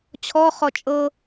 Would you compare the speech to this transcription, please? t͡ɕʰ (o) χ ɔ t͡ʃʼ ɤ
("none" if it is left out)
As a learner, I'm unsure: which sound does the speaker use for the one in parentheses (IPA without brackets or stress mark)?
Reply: ɔ